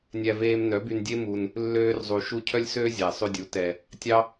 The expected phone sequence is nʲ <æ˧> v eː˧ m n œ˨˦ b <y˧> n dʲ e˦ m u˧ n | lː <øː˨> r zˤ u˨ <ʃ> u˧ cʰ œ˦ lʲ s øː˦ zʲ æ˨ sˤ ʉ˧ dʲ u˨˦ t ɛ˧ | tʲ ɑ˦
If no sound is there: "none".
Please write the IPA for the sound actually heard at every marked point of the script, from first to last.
æ˧, y˧, øː˧, ʃ

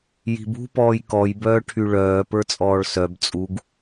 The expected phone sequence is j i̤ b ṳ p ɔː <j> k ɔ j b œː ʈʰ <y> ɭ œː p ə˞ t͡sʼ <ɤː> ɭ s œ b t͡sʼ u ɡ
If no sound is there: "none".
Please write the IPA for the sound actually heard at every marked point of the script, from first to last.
j, y, ɔː

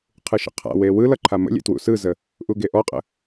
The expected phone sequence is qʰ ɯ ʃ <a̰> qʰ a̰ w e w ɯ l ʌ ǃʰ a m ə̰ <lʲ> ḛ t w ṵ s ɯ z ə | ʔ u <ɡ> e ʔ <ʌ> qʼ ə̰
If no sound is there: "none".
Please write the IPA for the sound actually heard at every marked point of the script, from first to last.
ə̰, lʲ, ɡ, ɔ

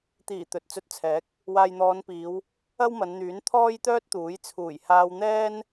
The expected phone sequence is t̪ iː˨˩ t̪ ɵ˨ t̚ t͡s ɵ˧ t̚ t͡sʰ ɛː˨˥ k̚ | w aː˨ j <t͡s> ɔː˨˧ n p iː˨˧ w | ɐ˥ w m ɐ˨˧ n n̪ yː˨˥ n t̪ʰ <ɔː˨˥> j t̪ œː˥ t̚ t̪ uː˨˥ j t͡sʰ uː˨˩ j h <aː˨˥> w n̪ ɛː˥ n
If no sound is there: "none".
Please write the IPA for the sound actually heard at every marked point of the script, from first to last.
n̪, ɔː˥, aː˧

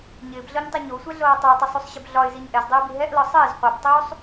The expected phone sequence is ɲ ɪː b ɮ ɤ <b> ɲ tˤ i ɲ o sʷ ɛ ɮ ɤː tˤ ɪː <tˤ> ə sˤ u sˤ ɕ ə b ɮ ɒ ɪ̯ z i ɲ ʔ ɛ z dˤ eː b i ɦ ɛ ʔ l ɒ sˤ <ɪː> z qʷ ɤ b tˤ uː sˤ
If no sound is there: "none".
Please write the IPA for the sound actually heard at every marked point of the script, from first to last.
none, tˤ, ɪː

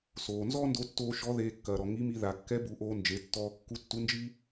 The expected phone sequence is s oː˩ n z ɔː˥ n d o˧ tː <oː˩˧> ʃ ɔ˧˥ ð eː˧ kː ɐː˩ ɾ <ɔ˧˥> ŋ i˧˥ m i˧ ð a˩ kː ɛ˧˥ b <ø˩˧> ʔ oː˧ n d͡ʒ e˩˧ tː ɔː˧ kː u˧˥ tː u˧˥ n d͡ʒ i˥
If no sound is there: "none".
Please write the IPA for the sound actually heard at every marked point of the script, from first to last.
oː˧, ɔ˩, u˩˧

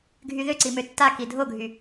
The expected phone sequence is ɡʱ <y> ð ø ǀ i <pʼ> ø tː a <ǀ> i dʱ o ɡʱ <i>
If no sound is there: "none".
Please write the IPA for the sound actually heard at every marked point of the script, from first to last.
y, m, k, y

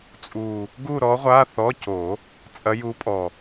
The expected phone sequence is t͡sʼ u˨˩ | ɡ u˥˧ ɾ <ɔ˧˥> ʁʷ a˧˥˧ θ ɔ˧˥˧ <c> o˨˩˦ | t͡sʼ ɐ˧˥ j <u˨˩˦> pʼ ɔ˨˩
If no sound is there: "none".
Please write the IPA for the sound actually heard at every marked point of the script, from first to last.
ɔ˧˥, c, u˧˥

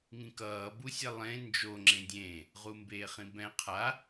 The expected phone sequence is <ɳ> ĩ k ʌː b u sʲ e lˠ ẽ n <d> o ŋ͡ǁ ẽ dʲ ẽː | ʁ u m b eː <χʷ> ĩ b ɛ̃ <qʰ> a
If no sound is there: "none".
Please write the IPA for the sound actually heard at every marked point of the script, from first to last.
ŋ, d͡ʒ, χ, qʰ

